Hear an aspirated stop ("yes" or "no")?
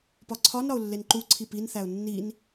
yes